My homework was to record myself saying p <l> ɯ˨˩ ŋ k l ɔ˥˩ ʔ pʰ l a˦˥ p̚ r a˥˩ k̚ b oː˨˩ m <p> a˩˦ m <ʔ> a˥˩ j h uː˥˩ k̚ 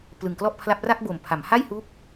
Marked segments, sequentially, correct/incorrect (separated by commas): correct, incorrect, incorrect